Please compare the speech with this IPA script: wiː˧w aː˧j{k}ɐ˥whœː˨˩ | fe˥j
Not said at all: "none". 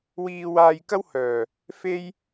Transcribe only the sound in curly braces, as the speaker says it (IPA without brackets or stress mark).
k